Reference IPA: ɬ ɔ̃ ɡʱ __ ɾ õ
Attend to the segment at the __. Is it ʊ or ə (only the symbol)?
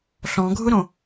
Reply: ʊ